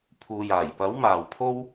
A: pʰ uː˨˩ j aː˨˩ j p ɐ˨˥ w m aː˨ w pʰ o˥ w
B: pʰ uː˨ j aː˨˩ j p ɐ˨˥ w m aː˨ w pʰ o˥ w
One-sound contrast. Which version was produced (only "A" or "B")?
B